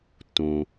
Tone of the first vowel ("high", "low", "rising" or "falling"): low